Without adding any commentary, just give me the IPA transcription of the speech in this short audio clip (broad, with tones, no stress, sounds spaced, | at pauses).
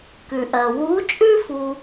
k ʉ˩ ʔ ɜ˩ w uː˧˥ t͡ʃʼ ʉ˥ f u˧